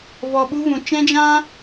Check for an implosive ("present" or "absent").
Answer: present